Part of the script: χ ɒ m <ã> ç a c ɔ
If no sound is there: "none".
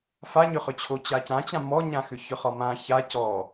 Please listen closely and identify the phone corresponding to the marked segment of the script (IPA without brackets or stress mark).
ã